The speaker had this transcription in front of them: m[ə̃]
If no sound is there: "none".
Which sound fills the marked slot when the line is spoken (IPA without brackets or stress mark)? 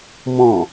ɔ̃